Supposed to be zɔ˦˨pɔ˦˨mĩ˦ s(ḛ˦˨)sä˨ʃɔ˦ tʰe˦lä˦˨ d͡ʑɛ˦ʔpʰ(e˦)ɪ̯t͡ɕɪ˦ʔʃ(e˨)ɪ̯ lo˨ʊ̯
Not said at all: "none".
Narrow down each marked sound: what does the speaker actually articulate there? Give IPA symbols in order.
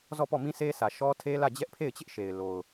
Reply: e˦, e˦˨, e˨

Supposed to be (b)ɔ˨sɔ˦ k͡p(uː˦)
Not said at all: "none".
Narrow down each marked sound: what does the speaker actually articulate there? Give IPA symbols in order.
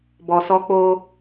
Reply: b, oː˦

